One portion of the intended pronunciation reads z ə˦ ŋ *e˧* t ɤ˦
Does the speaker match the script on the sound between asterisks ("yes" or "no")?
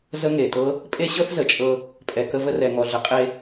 no